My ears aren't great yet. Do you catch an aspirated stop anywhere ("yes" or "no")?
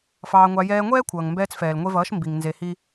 yes